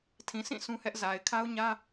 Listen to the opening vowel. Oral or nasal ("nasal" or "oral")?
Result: nasal